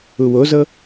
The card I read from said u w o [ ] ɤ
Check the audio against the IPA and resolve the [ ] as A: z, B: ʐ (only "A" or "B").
A